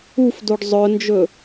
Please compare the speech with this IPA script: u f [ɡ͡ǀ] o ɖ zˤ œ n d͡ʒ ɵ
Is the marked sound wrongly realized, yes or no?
yes